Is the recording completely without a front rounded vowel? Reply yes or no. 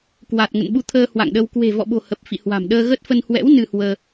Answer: yes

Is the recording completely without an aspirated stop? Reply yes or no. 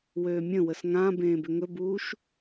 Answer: yes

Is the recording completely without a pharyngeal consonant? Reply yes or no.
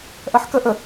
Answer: no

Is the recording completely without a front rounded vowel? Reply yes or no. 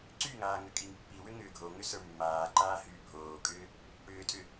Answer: no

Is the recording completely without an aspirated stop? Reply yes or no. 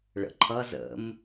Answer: no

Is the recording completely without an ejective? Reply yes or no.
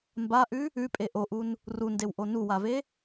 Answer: no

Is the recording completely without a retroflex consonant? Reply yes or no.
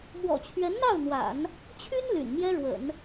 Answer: no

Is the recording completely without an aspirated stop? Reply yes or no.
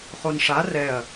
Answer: yes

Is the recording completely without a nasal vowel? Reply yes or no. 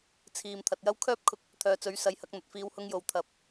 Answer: yes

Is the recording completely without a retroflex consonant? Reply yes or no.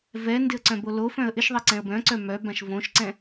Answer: yes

